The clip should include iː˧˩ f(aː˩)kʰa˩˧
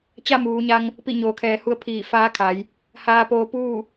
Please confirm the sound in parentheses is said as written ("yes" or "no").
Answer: no